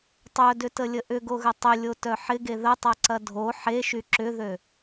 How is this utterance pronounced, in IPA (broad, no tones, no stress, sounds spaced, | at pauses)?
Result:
tˤ œ d ʏ t ə lʲ ə ʔ ʏ ɡ o ɣ ə tˤ ʏ lʲ o t œ ħ ɪ ɡ e ð ə tˤ a ǀ ɐ dʱ o ħ e ʃ y ǁ ʏ ð ø